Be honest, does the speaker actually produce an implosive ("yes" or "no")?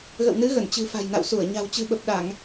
yes